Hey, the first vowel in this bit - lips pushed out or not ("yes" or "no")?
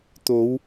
yes